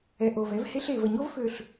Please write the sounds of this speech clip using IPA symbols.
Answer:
ɛ˨ ʔ o˨ v ɛ˦ v h e˦ ɬ e˨ v ə˨ ɲ o˦ v f ø˨ ɬ

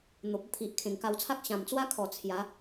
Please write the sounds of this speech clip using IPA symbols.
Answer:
n̪ o˨ p̚ ə˦ t̪ʰ i˨ ʔ kʰ ẽ˨˩ ŋ k a˧ w t͡sʰ a˦ k̚ ɕ ã˨˩ m t͡s w a˦ kʰ ɔ˨˩ t͡sʰ j a˨˦

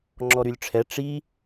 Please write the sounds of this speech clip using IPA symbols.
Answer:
ŋ͡ǁ ɔ ɾ y lʲ ʈ͡ʂʰ ɛ ʈ͡ʂ i

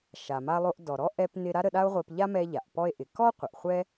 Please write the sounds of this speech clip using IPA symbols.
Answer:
ʃ a˩ m a˧ lˠ o˧ ʔ d ɔ˩ ɾ ɔ˥ ʔ ɛ˧ p n ɪ˧ ɾ a˥ ɾ ə˧ ɗ a˥ o̯ ʁʷ e˧ p ʎ a˥ m ɛ˧ ʎ a˩ ʔ p ɔ˧ e̯ ʔ ɪ˩ k ɔ˥ qʷ ə˩ ʔ χʷ ɛ˥

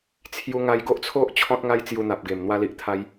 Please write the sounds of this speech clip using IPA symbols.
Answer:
t͡sʰ j u˧ ŋ a˧ j ɡ o˦ ʔ t͡sʰ o˦ ʔ t͡ɕʰ ɔ̃˦ t̚ ŋ a˦ j t͡s j u˧ n̪ a˨ p̚ ɡ e˨˩ m n̪ w a˧ l i˨ ʔ t̪ʰ a˧ j

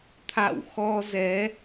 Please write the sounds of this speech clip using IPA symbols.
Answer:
t̪ʰ a̰˧˨ w x ɔ˧ z ɛ˨˦

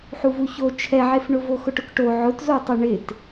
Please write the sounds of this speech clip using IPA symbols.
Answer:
ħ u v u ç o t͡ʃʰ ɛ ʕ e f ɳ ʊ v o x ʊ ʈ ʊ k ʈ o ʕ ʊ t z o tˤ ʊ ɳ ɪ t

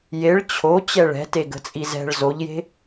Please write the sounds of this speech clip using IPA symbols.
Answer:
j e ɭ t͡ɕʰ o t͡ɕ ɛ ɭ ɛ̤ t e ɡ ə̤ t͡sʼ i z ɛ̤ ɭ z o ʎ j e̤

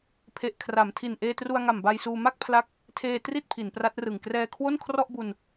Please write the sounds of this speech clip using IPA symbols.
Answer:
pʰ e˨˩ ʔ kʰ r a˩˦ m tʰ i˨˩ n ʔ eː˧ t r u˧ a̯ ŋ a˨˩ m b a˧ j s uː˧ m a˥˩ k̚ pʰ l a˦˥ k̚ | tʰ eː˧ t r i˥˩ t̚ pʰ i˩˦ n p r a˦˥ t̚ r ɯ˨˩ ŋ k r ɛː˧ kʰ w o˥˩ n kʰ r ɔ˥˩ ʔ b u˧ n

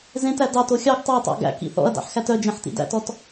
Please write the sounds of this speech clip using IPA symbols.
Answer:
z ẽ t æ d ɑ t o xʲ ɑ ɡ tˤ ɑ tˤ ɑ̰ ɡ æ̰ k ḭ θ ɔ̰ ɐ̯ d ɑ̰ ħ x æ t œ d͡ʒ ẽ ħ t ḭ d æ̰ t ɔ t

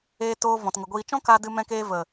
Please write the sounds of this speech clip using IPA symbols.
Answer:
eː˧ t oː˧ v ɔ̃˨ t ŋ ə˨ ɡʷ iː˧ t͡ʃ ɔ̃˦ k a˧ d ɨ˧ m ɛ̃˧ k eː˧ v ə˨

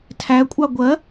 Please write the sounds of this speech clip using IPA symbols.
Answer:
tʰ æ kʷʼ ɑ ɡʷ ɜ

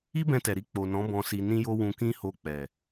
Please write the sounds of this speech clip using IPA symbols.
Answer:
i˦ b ɛ̃˧ t ɛ˨ ɾ i˧ k͡p o˨ n ɔ̃˨˦ b ɔ̃˧ s i˧ n ĩ˦ j o˦ w ũ˧ k ĩ˦ h o˧ k͡p ɛ˨

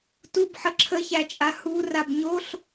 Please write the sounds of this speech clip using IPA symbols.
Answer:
t u b ħ ə ǁʰ ə ç æ t͡ʃʼ a h u r a b ɲ o ɬ

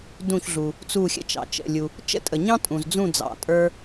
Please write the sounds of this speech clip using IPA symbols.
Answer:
d ũ˧˩ ç ɮ u˩ | t͡s u˧˩ xʲ ə̰˥˨ t͡ʃ ɑ̰˩ t͡ʃ ə̰˩˧˩ lʲ u˩ | t͡ʃ ə̰˦ tʼ ə˩ ɲ ɑ̃˦ tʼ ũ˩ z d͡z ũ˥˨ d͡z ɑ̰˩ tʼ ə˞˦

